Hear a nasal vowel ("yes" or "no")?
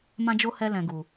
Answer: yes